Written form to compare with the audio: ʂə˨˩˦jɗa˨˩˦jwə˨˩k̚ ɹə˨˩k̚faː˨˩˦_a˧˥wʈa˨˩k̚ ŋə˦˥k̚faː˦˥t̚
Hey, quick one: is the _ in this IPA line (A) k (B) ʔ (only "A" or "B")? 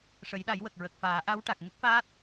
B